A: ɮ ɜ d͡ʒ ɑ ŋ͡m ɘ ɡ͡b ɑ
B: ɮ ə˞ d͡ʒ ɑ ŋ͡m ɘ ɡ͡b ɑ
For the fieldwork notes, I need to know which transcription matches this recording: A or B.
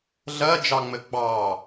A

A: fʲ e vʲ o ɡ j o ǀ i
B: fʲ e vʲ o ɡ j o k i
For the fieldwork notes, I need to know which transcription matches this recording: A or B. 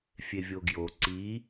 A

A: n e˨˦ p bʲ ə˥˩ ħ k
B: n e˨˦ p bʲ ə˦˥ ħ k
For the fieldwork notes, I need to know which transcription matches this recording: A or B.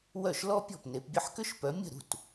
A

